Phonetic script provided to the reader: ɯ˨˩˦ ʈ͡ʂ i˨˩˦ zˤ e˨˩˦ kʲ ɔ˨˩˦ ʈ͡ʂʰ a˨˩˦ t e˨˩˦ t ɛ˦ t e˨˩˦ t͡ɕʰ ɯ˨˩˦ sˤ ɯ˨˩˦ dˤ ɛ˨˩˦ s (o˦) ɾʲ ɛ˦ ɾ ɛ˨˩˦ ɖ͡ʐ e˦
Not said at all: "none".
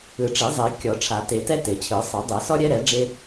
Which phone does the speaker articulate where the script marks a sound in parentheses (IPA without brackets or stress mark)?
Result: ɔ˦